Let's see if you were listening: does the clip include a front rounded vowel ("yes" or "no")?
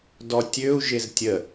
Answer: yes